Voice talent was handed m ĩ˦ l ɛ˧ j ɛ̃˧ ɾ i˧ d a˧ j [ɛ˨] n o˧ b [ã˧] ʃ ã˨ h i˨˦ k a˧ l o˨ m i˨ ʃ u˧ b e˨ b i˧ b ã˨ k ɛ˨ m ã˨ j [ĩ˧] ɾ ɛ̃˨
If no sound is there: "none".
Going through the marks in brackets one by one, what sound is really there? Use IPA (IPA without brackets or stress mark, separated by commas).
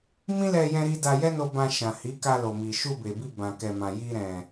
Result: ɛ˦, ã˧, i˧